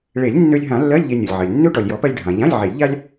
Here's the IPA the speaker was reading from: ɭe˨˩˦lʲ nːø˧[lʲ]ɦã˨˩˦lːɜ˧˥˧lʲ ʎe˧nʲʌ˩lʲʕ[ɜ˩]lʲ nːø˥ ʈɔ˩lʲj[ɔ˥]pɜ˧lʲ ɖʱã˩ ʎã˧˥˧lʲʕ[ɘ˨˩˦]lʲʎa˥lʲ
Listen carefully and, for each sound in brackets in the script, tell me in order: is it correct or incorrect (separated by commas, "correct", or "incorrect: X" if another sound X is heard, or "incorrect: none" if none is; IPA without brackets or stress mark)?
correct, correct, incorrect: ɔ˨˩˦, incorrect: e˨˩˦